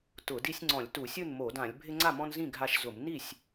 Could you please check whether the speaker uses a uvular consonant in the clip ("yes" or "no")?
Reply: no